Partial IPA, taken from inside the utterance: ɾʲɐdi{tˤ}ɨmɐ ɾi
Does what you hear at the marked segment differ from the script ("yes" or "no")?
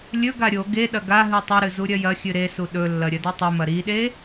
no